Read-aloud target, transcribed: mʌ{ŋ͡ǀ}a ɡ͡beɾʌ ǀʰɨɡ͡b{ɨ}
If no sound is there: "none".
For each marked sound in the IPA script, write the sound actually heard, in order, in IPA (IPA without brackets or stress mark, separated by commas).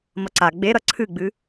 ǀ, ɨ